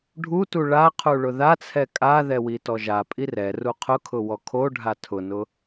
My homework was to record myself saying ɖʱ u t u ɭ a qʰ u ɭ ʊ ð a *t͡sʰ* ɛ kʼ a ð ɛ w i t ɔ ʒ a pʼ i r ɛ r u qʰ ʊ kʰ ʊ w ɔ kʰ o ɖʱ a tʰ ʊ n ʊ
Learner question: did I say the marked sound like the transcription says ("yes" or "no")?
yes